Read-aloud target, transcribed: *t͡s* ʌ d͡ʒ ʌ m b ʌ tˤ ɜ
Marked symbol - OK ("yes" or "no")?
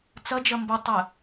yes